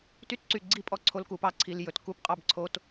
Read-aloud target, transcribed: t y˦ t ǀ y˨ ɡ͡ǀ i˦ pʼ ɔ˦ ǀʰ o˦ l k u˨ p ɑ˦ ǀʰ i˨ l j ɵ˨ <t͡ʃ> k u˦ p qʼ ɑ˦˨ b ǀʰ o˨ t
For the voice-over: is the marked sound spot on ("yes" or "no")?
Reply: no